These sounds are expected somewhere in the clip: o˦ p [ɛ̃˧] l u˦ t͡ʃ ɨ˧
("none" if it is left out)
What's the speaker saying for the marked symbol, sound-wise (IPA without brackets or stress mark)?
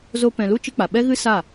ɛ̃˧